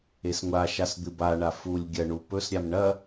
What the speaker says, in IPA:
e s ŋʷ a ʃ a s d̪ ɨ b a ɳ a f u lʲ ɡʲ ɐ ɳ u p ɵ s ɾʲ a m ɳ ɐ

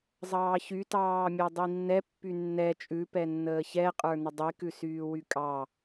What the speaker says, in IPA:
zˤ ɑː ç y t ɑː mʲ ɛ dˤ i nː ɛ pː y nː ɛ t͡ʃʼ ʉ p ɛ nː əː ç ɛ qʼ ə˞ n ə dˤ i k ʉ s yː w y kʼ ɑ

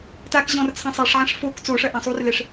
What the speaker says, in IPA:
t a k ʑ ɔ̃ r t͡sʰ ã sˤ ɛ ʂ ʕ ã ʂ f o k t͡s o ʂ ɐ ʔ ã sˤ u r l ɛ ʂ

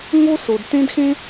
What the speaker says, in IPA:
ŋ o˥ s o˩ d t ẽ˥ d x ẽ˥

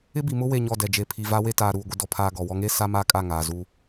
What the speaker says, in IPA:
ɪ˦ b i˨ m ʊ˦ w e˦˨ ɲ ɔ˦˨ d ɛ˨ d͡ʒ e˨ pʰ i˨ v a˦ w e˦ t aː˨ ɾ uː˨ ɡʷ ɪ˨ d ɔ˨ pʰ aː˨ ɡ ɔ˨ w ɔ˦ ŋ e˦ s a˦ m a˦ kʼ a˦˨ ŋ aː˨ z u˦

